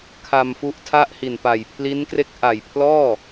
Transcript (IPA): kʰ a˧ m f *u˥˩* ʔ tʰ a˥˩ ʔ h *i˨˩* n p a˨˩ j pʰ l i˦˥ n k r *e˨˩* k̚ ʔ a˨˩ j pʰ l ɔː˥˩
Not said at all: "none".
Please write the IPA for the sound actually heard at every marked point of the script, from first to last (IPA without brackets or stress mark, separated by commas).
u˦˥, i˨˩, e˦˥